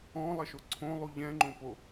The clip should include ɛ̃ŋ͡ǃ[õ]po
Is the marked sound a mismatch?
no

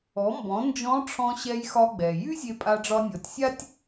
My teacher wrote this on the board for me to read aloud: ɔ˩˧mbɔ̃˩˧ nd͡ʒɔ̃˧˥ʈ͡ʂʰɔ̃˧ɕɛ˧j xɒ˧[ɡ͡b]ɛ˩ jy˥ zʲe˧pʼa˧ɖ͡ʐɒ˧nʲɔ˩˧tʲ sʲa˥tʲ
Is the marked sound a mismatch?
no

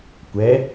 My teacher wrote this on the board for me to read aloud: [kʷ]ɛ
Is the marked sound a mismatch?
no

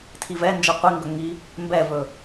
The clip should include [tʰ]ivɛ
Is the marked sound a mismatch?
no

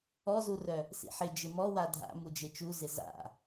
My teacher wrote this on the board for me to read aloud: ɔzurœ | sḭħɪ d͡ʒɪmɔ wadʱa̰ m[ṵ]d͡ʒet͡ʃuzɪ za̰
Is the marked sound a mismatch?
yes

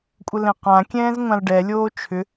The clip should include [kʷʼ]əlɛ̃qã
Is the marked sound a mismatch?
no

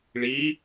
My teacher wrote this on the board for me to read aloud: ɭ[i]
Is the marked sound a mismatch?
no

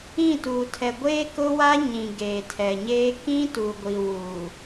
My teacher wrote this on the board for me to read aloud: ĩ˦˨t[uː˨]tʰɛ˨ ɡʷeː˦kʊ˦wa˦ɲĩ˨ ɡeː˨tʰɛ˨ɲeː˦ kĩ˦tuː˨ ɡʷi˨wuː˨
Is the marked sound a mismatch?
no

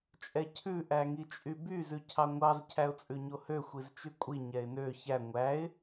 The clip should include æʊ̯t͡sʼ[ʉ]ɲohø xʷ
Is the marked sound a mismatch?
no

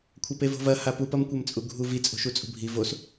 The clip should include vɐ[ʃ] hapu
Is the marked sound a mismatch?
yes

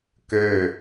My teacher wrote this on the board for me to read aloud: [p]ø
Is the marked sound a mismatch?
yes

